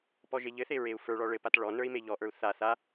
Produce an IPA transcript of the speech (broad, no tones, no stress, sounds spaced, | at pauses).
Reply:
p ɔ ʒ e ʎ ɘ θ e ɹ e u̯ f ə˞ ɭ ɔ ɭ ɘ p a t ɭ ɔ n ə˞ i̯ m e ʎ ɔ ʔ ə˞ u̯ θ a θ a